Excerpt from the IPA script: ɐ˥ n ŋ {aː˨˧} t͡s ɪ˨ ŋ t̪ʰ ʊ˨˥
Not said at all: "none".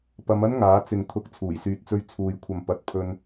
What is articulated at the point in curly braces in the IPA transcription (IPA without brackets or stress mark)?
aː˨˥